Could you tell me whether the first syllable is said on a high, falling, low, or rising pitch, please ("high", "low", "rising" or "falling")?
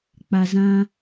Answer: low